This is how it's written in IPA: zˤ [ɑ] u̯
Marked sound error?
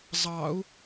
no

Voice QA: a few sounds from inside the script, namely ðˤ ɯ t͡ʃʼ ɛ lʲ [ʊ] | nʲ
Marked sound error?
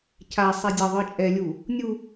yes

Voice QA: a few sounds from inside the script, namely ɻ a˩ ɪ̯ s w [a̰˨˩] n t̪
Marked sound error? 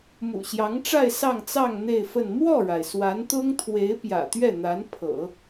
yes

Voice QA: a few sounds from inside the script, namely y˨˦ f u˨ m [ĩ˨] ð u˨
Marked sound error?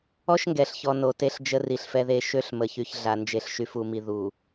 yes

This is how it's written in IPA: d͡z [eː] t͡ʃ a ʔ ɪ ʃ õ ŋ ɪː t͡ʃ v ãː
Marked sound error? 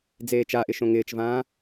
no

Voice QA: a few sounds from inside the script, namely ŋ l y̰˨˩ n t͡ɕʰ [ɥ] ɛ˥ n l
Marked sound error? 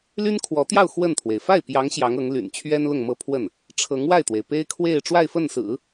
no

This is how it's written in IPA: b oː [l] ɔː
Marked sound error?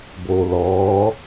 no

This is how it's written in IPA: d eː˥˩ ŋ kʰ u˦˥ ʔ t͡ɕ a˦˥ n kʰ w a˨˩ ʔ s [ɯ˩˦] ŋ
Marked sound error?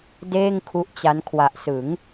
no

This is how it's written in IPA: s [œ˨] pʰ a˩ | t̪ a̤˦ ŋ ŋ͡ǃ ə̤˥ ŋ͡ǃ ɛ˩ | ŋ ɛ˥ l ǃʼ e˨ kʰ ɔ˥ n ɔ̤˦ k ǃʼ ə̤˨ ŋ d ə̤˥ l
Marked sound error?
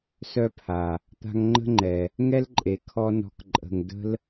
yes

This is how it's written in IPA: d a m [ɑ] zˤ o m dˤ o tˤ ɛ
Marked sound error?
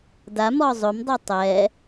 yes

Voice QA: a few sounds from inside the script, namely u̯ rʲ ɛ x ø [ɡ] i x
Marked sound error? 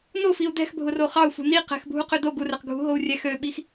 yes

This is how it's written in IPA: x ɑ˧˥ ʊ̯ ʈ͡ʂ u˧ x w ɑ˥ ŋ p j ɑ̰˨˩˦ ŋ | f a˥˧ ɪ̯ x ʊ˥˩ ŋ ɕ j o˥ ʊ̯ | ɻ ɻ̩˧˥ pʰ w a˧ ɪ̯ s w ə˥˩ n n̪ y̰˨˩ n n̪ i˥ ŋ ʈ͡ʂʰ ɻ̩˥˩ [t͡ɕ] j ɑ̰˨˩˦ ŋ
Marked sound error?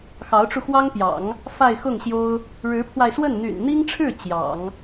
no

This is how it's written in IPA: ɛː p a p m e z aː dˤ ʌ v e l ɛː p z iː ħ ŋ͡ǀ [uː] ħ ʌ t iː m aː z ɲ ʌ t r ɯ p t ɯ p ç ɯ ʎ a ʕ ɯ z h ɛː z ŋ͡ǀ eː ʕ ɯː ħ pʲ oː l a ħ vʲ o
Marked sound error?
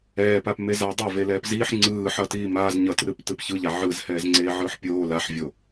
yes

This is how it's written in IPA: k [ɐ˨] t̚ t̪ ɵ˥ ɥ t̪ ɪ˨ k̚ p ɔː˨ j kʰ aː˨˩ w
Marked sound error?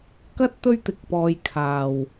yes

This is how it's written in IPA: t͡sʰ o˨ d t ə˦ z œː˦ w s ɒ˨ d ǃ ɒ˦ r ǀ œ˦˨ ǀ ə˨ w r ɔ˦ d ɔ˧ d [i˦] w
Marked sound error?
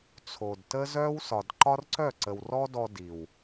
yes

